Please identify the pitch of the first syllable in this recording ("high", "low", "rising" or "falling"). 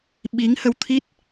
rising